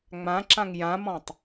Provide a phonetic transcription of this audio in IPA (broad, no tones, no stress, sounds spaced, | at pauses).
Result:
ŋ͡m ã ǁ ã ŋ j ã m ɔ̃ tˤ